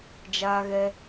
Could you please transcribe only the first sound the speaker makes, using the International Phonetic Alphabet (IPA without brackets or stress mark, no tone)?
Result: d͡ʒ